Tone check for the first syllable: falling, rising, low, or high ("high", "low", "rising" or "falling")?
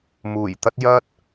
low